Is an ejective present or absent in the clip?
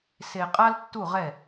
present